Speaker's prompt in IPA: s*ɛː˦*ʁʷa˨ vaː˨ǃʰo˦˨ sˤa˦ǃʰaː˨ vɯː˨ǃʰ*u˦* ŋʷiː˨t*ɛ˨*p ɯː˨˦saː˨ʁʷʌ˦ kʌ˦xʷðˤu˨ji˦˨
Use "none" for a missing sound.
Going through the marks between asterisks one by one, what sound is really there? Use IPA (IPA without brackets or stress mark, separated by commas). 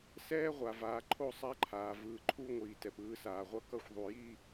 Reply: ɛː˦, u˦, ɛ˨